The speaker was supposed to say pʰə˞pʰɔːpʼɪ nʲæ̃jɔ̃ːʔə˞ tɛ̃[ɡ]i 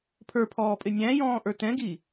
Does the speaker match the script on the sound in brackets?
yes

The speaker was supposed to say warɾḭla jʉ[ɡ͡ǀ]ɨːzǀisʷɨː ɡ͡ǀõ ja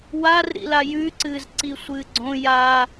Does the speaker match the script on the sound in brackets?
no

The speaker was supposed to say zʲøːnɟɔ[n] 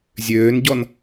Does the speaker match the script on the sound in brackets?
yes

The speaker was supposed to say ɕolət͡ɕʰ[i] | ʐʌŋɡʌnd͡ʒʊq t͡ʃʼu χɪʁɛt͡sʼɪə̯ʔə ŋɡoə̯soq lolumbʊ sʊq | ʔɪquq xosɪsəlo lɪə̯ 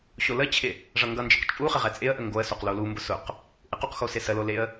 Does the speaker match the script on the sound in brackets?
no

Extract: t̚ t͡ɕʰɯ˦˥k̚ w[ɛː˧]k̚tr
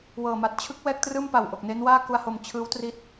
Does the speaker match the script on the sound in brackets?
no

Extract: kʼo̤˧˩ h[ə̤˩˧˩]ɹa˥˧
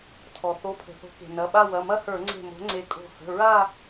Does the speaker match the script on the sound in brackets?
yes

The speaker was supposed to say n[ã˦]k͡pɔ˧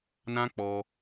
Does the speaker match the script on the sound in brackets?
yes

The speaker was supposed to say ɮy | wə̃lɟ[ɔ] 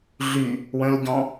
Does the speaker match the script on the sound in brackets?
no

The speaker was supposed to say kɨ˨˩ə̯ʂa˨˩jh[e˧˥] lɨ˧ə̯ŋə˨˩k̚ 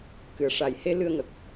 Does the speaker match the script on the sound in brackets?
no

